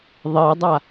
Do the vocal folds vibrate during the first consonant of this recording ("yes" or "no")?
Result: yes